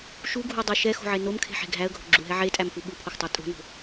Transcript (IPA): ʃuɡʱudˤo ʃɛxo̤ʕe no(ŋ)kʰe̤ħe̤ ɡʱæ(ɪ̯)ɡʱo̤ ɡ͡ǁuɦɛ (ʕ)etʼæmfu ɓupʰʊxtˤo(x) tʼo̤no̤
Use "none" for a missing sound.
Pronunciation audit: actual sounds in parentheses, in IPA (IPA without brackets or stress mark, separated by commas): m, ə̯, ʕ, none